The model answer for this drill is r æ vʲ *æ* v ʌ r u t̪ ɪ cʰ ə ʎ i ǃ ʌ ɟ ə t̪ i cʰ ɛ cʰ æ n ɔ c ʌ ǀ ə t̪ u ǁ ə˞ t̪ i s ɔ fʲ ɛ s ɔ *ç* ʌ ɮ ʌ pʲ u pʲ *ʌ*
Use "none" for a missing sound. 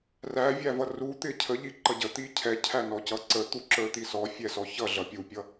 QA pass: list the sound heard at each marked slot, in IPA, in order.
æ, ç, ʌ

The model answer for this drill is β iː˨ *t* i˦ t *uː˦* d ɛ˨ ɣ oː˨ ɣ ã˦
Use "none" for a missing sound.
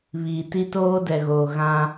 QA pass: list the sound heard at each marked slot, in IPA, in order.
t, oː˦

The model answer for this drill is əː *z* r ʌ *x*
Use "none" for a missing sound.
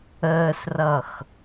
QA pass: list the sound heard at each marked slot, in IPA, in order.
s, x

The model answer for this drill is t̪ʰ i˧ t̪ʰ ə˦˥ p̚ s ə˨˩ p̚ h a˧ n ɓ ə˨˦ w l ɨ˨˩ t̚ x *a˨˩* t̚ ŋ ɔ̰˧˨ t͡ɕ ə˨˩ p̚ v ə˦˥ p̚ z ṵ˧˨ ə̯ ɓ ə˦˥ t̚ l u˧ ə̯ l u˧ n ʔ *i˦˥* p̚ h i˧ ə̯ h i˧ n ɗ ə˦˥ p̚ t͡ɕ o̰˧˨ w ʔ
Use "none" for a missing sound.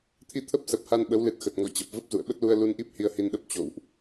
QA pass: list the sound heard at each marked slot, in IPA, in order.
ə˨˩, i˦˥

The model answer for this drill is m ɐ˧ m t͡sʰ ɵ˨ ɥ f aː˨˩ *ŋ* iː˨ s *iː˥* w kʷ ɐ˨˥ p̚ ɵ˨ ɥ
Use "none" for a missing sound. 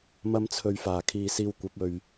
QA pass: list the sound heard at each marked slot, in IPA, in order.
kʰ, iː˧

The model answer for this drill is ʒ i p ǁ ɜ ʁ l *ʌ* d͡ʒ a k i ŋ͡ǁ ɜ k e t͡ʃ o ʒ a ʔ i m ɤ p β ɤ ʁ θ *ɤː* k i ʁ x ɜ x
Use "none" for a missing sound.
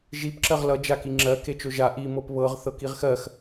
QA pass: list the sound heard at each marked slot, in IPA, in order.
ʌ, ɤ

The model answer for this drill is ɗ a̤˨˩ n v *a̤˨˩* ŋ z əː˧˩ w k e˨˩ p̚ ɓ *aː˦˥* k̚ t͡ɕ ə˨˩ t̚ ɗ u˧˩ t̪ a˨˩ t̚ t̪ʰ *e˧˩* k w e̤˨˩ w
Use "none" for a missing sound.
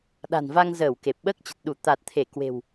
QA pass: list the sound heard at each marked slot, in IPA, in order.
a˧, əː˦˥, e˧˩

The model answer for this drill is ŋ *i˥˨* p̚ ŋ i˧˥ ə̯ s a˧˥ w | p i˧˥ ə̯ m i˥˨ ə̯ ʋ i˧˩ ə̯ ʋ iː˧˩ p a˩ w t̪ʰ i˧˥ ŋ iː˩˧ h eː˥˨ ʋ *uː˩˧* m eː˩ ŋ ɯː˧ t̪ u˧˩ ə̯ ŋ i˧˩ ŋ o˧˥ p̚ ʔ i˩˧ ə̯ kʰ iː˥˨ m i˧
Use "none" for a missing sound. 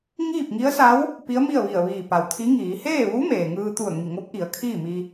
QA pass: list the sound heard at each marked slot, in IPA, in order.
iː˥˨, uː˧˥

